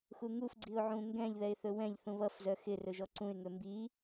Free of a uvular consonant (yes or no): yes